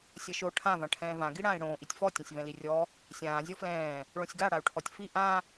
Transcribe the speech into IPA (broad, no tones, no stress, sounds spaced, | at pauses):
sʲ ɐ ʃ o ʈʰ ã v ã ʈʰ ɛ̃ː v ã ɡ i ɽ ãː i̯ ɽ õː ʔ i tʲ f ɔ tʲ ɐ̃ sʲ v ɛ̃ l i rʲ ɔ | sʲ ãː zʲ ɔ f l ɛ̃ː | ɭ õ sʲ ɡ a ɽ a u̯ ʈʰ ɔ tʲ f i ʔ ã